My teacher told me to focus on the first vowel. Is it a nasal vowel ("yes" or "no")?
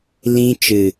yes